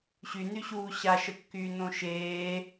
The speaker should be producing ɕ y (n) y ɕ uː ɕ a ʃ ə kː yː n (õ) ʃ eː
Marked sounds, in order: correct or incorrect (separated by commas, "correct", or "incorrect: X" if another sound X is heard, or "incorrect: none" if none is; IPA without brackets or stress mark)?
correct, correct